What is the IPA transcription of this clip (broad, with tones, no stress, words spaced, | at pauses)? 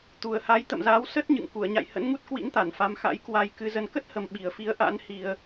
t̪u˨˩ə̯ha˨˦j t̪ə̰˧˨mzaː˨˦w sə˦˥t̚ ɲɨ̰˧˨ŋ ku˧˩ə̯ɲa̰˧˨j hə̰˧˥nŋu˦˥t̚ kwḭ˧˥nt̪a˧˩n fa˨˦mxa̰˧˥jkwa˧j kɨ˧zə˧n kə˦˥t̚hə˨˩m ɓi˨˩ə̯fi˨˦ə̯ ʔa̰˧˥n hi˧ə̯